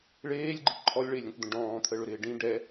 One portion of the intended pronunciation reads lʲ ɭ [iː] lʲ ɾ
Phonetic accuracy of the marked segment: incorrect: ɪː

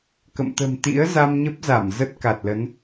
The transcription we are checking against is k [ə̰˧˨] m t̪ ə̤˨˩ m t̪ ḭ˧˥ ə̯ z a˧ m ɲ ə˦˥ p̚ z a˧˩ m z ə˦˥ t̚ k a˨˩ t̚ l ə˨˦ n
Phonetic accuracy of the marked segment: correct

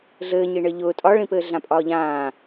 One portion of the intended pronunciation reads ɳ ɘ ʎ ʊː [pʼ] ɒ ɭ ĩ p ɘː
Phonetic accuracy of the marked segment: incorrect: tʼ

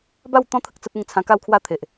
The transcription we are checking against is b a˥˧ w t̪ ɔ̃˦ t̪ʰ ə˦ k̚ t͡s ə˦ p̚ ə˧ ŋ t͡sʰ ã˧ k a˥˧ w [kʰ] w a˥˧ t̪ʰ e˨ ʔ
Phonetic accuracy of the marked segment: correct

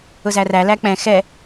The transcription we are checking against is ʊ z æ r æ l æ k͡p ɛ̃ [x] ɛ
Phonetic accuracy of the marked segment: correct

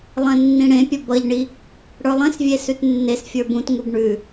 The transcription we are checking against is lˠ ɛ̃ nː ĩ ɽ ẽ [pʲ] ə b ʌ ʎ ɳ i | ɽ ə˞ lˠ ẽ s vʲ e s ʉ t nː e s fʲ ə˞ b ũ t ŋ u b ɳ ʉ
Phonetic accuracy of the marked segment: correct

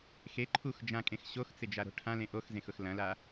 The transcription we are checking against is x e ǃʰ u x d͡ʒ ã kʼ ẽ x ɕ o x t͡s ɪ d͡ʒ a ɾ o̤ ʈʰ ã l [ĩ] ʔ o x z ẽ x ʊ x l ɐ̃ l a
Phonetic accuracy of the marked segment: incorrect: ẽ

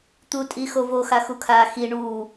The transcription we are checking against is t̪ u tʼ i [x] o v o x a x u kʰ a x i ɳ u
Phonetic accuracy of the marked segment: correct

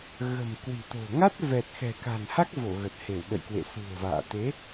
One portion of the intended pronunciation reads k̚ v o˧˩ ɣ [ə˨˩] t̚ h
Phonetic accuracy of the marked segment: correct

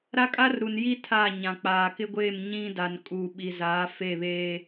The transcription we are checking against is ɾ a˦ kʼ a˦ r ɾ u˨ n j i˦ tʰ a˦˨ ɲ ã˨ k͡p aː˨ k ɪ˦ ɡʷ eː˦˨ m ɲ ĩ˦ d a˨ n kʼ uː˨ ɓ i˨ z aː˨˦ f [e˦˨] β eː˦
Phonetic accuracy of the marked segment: correct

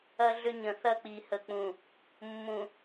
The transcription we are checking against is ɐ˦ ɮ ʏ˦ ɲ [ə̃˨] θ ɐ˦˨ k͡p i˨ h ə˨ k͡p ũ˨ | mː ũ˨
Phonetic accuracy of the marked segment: correct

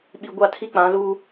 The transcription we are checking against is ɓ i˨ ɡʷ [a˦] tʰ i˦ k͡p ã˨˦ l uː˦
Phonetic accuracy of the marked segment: incorrect: a˦˨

